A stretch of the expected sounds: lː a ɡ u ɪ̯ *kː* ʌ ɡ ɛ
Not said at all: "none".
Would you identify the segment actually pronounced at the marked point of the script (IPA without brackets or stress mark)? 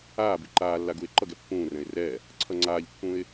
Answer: ǃ